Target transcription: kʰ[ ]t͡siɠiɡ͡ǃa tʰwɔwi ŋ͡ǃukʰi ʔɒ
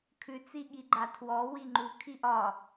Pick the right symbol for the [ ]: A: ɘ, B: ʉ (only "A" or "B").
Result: B